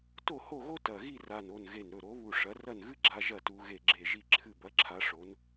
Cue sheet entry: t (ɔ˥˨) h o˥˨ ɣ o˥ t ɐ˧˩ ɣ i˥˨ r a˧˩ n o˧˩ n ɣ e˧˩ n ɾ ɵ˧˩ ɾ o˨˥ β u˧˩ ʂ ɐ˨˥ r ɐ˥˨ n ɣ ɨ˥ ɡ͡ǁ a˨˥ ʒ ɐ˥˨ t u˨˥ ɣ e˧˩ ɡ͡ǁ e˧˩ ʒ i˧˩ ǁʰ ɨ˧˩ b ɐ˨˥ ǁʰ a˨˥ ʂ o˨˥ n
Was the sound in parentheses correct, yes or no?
no